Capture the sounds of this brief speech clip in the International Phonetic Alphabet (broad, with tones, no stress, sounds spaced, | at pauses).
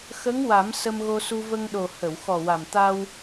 x ə˧˥ ŋ w a˨˩˦ m s ə˧ m ɣ o˧ s u˧ v ə˧ ŋ ɗ o˨˩ h ə˨˩˨ w x ɔ˨˩ w a˨˩ m t̪ a˧ w